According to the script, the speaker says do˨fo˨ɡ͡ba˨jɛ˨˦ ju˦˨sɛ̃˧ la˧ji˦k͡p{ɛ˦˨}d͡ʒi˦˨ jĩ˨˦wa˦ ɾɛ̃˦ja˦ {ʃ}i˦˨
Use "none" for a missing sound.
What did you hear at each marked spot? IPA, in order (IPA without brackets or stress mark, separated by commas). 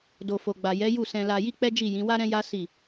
ɛ˦, s